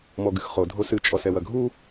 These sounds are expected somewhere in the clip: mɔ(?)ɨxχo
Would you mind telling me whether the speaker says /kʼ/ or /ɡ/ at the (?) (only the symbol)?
ɡ